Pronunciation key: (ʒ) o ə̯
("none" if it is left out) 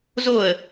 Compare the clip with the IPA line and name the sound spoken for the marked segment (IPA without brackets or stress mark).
z